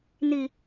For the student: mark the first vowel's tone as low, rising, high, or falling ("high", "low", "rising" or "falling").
low